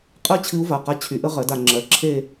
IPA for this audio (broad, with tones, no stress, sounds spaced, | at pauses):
qʼ ɜ˥ t͡ɕʰ ɨ˧˥ u̯ v a˩˧˩ q a˧˥ t͡ɕʰ y˩˥ ʔ ə˧˥ ʁ ɜ˩˥ d a˩˧ ŋ͡ǁ ɜ˩˥ ǁʰ e˦˨